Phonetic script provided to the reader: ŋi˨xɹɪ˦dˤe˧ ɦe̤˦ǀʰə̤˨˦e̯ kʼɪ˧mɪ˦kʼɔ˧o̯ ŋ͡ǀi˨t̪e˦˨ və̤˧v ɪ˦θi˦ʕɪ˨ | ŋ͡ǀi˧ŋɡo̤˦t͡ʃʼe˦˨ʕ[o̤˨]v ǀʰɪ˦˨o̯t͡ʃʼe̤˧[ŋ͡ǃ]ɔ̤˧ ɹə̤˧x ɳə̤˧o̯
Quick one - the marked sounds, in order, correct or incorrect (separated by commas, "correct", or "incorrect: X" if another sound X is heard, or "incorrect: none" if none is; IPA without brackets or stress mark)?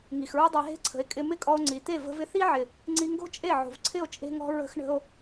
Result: correct, incorrect: ŋ